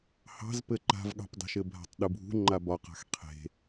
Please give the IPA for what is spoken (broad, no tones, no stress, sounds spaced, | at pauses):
h ɑ̤ z p ɘ ǃ a̤ v ɠ ɑ̤ p dˤ e̤ ʃ ɘ bʱ a̤ tˤ ɗ u bʱ ṳ ŋ͡ǃ a b ɒ q a̤ x qʰ e̤